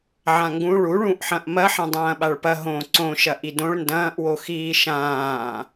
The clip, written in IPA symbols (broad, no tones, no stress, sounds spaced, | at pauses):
ʕ ã ŋ ɡ ũ ɭ u ɭ ũ ʔ ħ ɐ̃ ʔ m ɐ ħ ɐ̃ dˤ ɐ̃ː ɓ a ɭ p ɐ ɦ õ ǀ õ ʃ ɐ ʔ i d õ ɭ n d ɐ̃ː ʔ w o x iː ʃ ãː